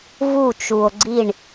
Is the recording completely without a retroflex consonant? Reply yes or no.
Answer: no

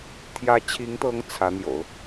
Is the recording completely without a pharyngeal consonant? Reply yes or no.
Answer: yes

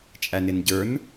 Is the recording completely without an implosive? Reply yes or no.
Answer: yes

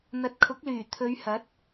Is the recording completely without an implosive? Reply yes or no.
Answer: yes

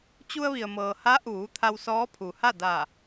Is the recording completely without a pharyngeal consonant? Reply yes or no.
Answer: yes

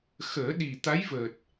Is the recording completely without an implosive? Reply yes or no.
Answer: no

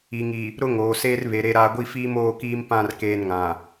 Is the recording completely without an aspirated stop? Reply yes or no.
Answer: yes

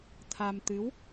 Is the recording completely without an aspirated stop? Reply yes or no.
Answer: no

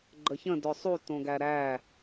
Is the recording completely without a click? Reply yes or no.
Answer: no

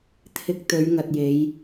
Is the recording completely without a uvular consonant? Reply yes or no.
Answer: yes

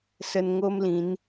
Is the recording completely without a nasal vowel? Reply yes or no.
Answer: no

